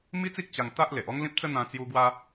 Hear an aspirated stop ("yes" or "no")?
no